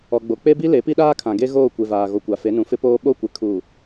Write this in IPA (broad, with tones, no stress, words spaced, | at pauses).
ɔ˨ɡ͡bo˨k͡pe˦bi˦ le˨˦pi˦ɗaː˦ kʰã˨ɡe˦ ɣoː˦˨kʷe˨vaː˨ ɣo˨kʷa˨fe˨˦nũ˨ fɪ˦poː˦ ɓo˦˨kʷɪ˨kʰuː˨